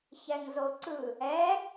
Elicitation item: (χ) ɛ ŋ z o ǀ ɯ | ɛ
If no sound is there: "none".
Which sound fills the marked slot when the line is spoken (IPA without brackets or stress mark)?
ç